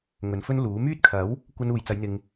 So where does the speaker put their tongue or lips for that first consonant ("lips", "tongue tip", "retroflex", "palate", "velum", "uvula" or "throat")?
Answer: velum